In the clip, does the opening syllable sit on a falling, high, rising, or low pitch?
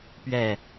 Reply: low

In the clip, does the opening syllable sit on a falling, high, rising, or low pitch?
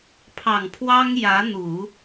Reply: low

